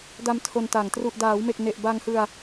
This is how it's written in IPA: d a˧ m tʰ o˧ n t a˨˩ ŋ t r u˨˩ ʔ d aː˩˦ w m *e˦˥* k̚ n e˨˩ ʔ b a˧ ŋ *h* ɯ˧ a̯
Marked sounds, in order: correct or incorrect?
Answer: incorrect: e˨˩, correct

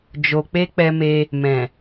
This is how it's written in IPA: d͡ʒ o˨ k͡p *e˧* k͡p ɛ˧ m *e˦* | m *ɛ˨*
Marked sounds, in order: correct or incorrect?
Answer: correct, incorrect: e˧, incorrect: ɛ̃˨

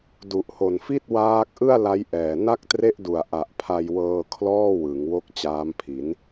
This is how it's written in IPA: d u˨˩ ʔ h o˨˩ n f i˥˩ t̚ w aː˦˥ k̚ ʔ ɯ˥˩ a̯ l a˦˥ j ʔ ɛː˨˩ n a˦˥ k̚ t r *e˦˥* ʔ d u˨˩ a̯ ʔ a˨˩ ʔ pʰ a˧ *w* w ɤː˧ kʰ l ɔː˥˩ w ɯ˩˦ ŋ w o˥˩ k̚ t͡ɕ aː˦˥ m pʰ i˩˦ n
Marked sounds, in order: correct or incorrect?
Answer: correct, incorrect: j

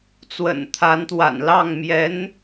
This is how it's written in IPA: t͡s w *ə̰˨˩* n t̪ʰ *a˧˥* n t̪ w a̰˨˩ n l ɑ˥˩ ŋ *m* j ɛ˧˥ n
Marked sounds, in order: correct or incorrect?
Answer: correct, correct, correct

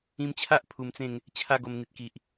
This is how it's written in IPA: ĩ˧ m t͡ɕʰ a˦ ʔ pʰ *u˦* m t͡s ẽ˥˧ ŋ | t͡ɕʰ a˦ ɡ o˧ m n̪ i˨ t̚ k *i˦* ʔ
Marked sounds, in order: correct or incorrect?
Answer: incorrect: u˧, incorrect: i˨

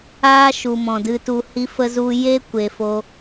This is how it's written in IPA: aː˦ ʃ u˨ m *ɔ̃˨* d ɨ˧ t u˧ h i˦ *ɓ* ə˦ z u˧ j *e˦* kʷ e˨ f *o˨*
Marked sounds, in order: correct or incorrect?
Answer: correct, incorrect: f, correct, incorrect: o˦

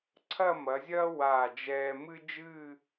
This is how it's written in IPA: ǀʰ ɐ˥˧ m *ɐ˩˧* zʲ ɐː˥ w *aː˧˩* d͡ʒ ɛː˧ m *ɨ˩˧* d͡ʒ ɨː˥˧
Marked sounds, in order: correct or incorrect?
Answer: correct, correct, incorrect: ɨ˥

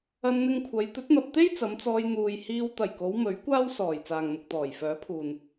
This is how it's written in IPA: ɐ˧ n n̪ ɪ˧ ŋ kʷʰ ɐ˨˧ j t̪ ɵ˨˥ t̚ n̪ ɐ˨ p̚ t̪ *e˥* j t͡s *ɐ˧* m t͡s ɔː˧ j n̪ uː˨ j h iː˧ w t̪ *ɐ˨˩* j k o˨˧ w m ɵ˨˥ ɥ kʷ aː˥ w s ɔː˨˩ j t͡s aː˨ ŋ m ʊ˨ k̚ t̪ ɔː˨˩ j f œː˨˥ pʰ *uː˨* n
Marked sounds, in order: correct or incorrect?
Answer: correct, incorrect: ɐ˨˧, correct, correct

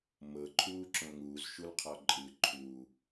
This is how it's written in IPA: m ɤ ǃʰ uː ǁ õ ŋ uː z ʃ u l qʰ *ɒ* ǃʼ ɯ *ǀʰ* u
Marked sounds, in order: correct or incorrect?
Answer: correct, incorrect: ǃʰ

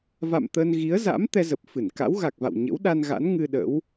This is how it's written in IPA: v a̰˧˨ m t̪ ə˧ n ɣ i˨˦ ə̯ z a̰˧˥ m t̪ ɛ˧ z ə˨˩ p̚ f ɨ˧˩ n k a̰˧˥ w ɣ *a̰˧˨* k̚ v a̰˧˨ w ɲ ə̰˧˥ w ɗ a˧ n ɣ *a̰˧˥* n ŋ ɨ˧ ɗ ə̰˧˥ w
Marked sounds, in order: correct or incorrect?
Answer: incorrect: a˨˩, correct

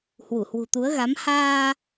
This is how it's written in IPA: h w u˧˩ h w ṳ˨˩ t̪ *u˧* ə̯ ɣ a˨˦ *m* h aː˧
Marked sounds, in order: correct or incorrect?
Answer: incorrect: u˨˦, correct

